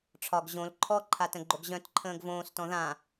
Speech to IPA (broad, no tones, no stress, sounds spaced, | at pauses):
ʈ͡ʂʰ ɒ ɡ ʑ õ l ǃʰ ɔ ǃʰ a t ə̃ ɡ͡ǃ o ɡ ʑ œ̃ t ǃʰ ə̃ː ɡ v õː s t ɔ̃ ð ã